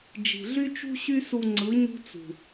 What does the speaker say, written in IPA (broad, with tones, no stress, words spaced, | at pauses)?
d͡ʒi̤˨ɮy˦ t͡ʃṳ˦ ɕy˦su˧ŋ͡ǀɯ˨˦ ɲṳ˦t͡sṳ˨